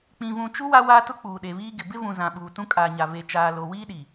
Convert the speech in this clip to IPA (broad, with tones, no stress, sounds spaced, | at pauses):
k͡p ĩ˨ v ũ˨ t͡ʃ u˦ w a˦ w aː˦ t ʊ˦ k͡p uː˨ ɗ e˨ β iː˦ ɡ ɪ˨ b ɪ˦ v ũ˨ z ã˨ ɓ uː˨ t ũ˦ kʼ aː˨ ɲ a˨ v e˨ t͡ʃ aː˨ l o˨ w iː˦ ɗ i˨